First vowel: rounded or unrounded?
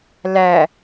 unrounded